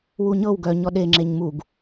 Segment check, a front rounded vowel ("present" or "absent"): present